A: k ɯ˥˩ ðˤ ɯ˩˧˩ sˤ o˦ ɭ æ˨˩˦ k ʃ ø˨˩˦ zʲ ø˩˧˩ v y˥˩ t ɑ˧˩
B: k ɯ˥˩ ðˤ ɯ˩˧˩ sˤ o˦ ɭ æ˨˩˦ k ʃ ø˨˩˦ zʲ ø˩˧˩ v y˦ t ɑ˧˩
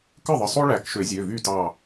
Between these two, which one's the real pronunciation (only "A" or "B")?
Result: A